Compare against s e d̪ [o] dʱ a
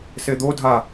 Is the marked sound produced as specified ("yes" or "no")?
yes